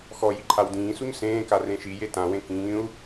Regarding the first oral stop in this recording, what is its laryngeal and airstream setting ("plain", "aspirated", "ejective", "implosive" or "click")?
click